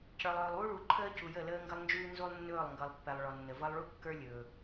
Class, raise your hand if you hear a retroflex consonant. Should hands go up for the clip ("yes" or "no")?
yes